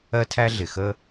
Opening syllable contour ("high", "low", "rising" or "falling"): high